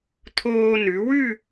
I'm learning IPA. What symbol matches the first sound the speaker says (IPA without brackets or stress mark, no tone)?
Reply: t̪ʰ